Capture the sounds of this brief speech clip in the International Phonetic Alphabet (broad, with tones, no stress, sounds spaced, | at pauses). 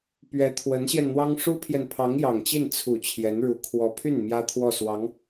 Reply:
p ɥ ɛ˧˥ t̪ʰ w ə˧˥ n ɕ j ɛ˧ n n̪ w ɑ˥ ŋ ʂ u˥ pʰ j ɛ˨ n pʰ ɑ˧˥ ŋ j ɑ˨˩ ŋ t͡ɕ i˥˩ n t͡sʰ u˨˩ t͡ɕʰ j ɛ˧˥ n ɻ u˧˥ kʰ w ɔ˧˥ pʰ y˥˩ n m j ä˥ t̪ʰ w ɔ˥˩ s w ɑ˧˥ ŋ